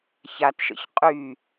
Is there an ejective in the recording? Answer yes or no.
yes